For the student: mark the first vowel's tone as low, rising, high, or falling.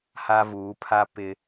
high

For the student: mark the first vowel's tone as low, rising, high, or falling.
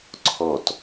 falling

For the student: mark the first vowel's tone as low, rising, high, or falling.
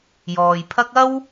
low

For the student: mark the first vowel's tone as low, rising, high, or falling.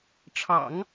low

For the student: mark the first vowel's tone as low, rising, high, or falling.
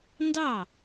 falling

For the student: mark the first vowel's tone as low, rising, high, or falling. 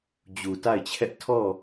low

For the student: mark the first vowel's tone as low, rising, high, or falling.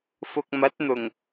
low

